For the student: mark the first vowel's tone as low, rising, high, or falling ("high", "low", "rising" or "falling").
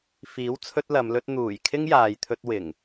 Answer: rising